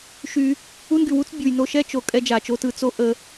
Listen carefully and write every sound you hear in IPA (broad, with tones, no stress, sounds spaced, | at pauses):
ʃ y˧ | u˦ n ɡ y˨ w u˦ t͡s bʲ u˨ j n o˧ ʃ ɛ˦ t͡ʃ o˨ kʼ ɛ˦ d͡ʒ a˨ t͡ʃ o˧ t ɯ˦˨ t͡s o˧ ʔ ə˨